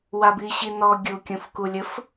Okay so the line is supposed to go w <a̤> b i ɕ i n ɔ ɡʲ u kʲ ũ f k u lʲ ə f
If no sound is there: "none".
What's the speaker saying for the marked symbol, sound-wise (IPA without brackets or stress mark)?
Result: a